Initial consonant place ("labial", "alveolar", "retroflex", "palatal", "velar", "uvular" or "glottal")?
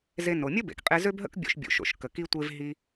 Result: alveolar